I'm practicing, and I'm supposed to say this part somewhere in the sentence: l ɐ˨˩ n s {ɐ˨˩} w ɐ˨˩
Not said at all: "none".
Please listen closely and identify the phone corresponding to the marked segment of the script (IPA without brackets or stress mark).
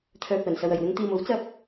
ɐ˨